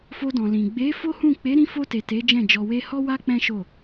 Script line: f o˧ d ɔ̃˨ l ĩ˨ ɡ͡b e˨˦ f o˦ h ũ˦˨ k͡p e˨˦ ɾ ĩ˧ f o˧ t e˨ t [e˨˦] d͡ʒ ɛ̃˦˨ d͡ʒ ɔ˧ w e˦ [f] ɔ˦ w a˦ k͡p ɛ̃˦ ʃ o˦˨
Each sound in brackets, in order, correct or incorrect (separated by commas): correct, incorrect